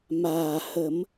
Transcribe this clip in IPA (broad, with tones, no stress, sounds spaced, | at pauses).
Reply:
m aː˨˩ h ə˨˩˦ m